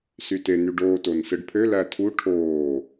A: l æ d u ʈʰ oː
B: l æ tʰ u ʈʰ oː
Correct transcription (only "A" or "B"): B